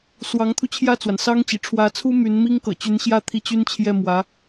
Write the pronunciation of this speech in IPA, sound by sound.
s w ɑ˧˥ ŋ t̪ʰ u˧ t͡ɕʰ j ä˥˩ t͡s w a˩ n s ɑ˥ ŋ t͡ɕ ḭ˨˩ ʈ͡ʂʰ w ä˧˥ t͡sʰ u˥ m y˧˥ n m i˥ ŋ k ɤ̰˨˩ t͡ɕ y˧˥ n ɕ j ä˥˧ t̪ʰ i˥˩ t͡ɕ y˥ n t͡ɕʰ j ɛ˥˩ m w ä˧˥

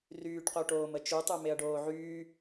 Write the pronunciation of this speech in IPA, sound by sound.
r yː ʈ q o ʈ oː m ə t͡ʃ u tˤ u m e ɐ̯ ɖ oː ʕ yː

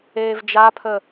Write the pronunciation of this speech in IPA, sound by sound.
eː v d͡ʒ a pʰ ə

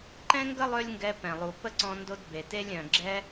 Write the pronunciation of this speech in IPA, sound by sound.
ǃ ɛ̃˥ ŋ ɡ ə˥ lˠ ø˥ lʲ ŋ ɡ ɛ˧ p ɛ̃˩ lˠ u˩ p ə˥ ǀ ɔ̃˧ n d o˧ d b e˩ t e˥ lʲ œ̃˩ ɡ͡ǁ ɛ˧

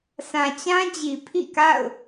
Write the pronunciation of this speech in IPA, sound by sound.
s ã˨ t͡ɕ ã˦ d͡ʑ i˨ pʰ ḭ˦˨ k a̰˦˨ ʊ̯

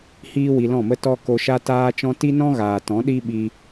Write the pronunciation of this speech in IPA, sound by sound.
h iː˦ w i˧ l ɔ̃˦˨ m ə˦ t ɔ˦ k o˧ ʃ a˦ t aː˦ t͡ʃ ɔ̃˦ t i˦ n ɔ̃˦ ɣ aː˨ t ɔ̃˨˦ ɗ i˦ ɓ i˧

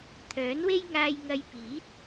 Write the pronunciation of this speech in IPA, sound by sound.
t̪ʰ œː˨˥ n w e˥ j ŋ aː˧ j ŋ ɐ˧ j p iː˨˥ t̚

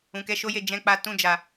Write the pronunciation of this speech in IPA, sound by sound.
ũ˨ k ɛ˨˦ ʃ o˦ j e˦˨ d͡ʒ ɛ̃˧ k͡p a˧ t ũ˧ d͡ʒ a˨

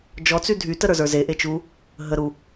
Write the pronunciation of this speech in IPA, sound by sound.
d͡ʒ ɔ t͡s y dʱ y t ə ɾ ə˞ z ə˞ z e ʔ e t͡ʃ u | ɦ ə ɾ u

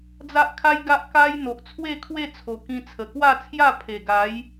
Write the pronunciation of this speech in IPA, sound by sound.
d͡z a˦ ʔ kʰ a˦ j ɡ a˦ ʔ k a˦ j n̪ o˨ ʔ t͡sʰ w e˥˧ kʰ w e˥˧ t͡sʰ o˨˩ k ĩ˧ t͡sʰ ə˨˩ k w a˥˧ t͡sʰ j a˥˧ pʰ e˨˩ ɡ a˨˦ j

